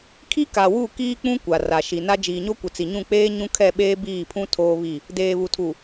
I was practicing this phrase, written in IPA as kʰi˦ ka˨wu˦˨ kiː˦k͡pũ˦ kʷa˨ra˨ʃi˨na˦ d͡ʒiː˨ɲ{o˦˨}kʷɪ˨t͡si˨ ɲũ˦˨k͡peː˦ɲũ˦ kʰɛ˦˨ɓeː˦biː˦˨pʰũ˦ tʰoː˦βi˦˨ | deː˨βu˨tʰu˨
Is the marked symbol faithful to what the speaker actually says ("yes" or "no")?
no